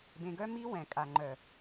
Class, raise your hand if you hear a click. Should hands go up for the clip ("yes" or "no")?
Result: yes